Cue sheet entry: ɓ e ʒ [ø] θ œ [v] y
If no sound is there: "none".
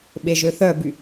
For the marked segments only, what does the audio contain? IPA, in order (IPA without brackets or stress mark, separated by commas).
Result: ø, b